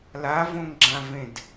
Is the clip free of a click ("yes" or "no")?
no